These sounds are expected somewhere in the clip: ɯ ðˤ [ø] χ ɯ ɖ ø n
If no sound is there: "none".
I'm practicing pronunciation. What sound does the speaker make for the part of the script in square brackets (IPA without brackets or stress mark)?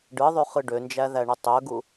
y